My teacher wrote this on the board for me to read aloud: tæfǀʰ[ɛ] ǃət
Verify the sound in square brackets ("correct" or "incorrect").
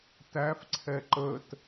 correct